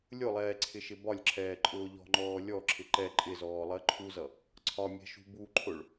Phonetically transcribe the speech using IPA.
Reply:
lʲ ʊ lˠ ɛː ǀʰ ɪ ʃ ɪ b ɒ lʲ ǁʰ ɛː ǃʼ ʊː ʎ ɔ̤ ŋ͡ǃ ɔː lʲ ɔ ǁʰ ɪ ǃ ɛ ǃʼ ɪ z ɔː lˠ ɜ ǃʰ u z ʌ | ǀʰ ɒ mʲ ɛ̤ ʃ ṳ b u ǃʰ ʊ ɭ

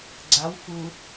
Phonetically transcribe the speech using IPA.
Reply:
ɡ͡ǀ a w f u

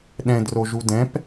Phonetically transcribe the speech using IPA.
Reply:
ɗ ɛ̃ d r o ʒ u d ɛ̃ p

